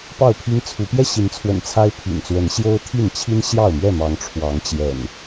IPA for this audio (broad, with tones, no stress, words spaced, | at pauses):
pɑ˥˨ʊ̯pʰi˦ŋt͡sʰu˨˦ pjɛ˥˨ɕi˨˦nt͡sʰwə̰˨˩n t͡sʰa˦ɪ̯pʰḭ˨˩nt͡swə˨˦n ɕjo˦ʊ̯t̪ʰi˥˨n t͡ɕʰi˦nɕjɑ˥˨ʊ̯mɥɛ˥˨mɑ˨˦ŋ ʈ͡ʂʰwɑ˨˦ŋt͡ɕjɛ̰˨˩n